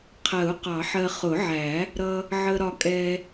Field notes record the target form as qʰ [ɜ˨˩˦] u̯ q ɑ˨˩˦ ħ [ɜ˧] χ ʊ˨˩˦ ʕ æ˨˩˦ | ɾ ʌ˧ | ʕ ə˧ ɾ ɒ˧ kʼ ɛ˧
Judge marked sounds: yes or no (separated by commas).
yes, yes